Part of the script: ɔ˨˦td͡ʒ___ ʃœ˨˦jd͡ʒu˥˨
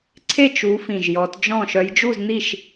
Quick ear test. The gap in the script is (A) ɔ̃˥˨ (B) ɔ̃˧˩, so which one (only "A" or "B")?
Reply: A